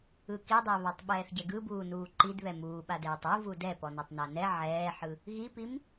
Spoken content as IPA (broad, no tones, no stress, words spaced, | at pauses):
ɯkidˤɛβatˤ ɓɛːθɟɛɡɯ buːnuːǃid βɛmuːɓadɛːtˤ u vudɛpɔnɛtˤ nanɛ ʕɛːħɯ | ɣipim